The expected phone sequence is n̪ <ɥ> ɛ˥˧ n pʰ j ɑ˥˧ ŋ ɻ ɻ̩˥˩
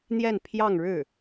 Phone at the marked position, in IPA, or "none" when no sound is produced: j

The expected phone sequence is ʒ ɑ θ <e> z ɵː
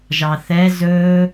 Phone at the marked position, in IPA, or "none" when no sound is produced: ɛ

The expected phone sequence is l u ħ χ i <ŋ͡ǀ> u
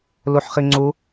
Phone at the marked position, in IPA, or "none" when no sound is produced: ŋ͡ǀ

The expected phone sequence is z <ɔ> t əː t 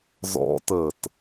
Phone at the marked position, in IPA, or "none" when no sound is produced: ɔ̰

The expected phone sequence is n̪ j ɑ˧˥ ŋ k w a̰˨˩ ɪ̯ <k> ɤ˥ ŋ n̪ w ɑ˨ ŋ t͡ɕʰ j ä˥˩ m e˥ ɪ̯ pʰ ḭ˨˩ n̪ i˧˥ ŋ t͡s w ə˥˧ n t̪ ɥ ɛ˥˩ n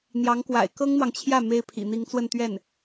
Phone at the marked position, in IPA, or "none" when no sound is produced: k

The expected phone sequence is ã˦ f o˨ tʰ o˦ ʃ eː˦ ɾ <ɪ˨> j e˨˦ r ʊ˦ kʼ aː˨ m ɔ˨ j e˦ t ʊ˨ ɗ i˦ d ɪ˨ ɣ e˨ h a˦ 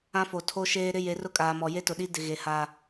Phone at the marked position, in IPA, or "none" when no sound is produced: ɪ˦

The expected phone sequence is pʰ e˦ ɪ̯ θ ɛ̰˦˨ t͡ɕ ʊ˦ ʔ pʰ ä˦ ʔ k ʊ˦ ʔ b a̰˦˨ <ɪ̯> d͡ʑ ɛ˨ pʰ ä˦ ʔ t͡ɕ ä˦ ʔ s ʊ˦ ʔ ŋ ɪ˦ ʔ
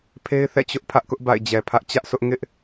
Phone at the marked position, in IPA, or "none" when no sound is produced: ɪ̯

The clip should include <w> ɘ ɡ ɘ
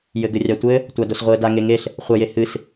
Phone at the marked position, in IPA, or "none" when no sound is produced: j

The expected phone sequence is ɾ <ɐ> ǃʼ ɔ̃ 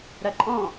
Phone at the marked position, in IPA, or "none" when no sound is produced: ɐ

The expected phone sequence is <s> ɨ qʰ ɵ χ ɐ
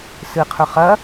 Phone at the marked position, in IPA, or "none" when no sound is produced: s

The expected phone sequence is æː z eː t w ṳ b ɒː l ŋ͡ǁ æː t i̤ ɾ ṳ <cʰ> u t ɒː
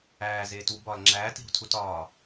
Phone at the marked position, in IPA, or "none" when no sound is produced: tʰ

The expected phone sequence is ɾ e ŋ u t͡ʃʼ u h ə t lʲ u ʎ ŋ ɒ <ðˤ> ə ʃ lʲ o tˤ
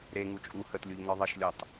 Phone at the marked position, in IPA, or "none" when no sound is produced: ðˤ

